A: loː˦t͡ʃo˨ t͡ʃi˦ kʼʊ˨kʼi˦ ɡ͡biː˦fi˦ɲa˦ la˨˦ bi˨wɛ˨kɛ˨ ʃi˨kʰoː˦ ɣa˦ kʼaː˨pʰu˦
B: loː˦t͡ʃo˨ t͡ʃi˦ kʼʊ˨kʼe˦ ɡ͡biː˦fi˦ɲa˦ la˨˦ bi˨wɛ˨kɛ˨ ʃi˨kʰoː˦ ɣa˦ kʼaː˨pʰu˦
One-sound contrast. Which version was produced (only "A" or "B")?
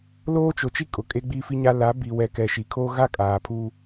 B